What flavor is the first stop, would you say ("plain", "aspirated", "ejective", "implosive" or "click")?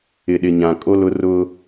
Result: implosive